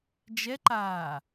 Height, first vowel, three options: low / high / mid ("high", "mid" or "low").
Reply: mid